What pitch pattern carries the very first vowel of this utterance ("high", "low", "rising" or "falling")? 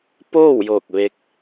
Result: falling